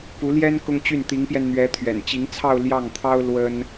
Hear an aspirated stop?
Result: yes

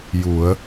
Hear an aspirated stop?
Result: no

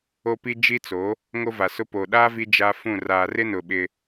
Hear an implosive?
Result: yes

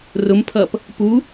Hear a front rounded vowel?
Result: no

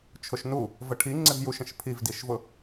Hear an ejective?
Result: no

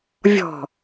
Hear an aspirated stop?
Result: no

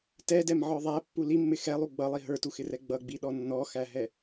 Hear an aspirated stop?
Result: no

